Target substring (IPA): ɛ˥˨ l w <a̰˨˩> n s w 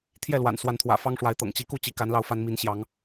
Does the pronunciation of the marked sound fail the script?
no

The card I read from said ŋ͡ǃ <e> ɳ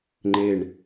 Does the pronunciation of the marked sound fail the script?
no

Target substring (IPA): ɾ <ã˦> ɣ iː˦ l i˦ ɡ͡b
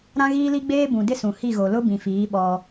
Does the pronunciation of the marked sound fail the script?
no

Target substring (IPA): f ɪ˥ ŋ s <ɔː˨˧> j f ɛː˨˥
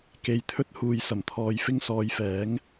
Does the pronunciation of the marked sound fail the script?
no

